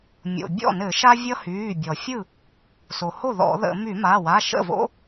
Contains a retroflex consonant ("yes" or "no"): no